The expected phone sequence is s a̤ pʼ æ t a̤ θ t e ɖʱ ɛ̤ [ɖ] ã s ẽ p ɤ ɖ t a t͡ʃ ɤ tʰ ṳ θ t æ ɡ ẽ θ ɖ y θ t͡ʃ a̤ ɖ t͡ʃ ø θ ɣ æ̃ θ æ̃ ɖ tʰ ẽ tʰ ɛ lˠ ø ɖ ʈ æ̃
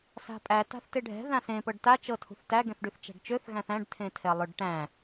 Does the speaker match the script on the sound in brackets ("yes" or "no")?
no